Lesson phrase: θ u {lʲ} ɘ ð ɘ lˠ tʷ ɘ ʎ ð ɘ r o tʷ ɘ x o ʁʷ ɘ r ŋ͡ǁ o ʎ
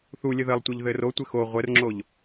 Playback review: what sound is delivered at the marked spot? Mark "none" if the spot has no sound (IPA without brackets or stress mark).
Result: lʲ